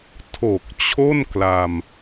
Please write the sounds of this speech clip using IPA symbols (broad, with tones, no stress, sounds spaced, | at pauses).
tʰ o˨˩ k̚ t͡ɕʰ o˥˩ n k l a˧ m